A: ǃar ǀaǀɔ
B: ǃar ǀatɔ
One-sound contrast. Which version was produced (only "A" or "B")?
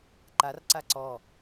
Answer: A